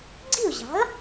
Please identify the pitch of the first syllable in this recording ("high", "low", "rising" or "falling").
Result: falling